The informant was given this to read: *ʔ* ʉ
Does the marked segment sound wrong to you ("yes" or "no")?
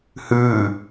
yes